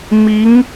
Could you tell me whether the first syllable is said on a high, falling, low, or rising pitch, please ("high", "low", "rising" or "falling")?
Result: rising